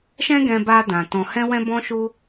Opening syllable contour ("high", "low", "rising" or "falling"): high